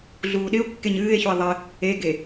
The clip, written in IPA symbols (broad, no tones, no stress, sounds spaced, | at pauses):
ɮ uː ɗ ɪ o̯ kː e ɲ ɨː e̯ ç u e̯ ðˤ ɪ | e ɡ e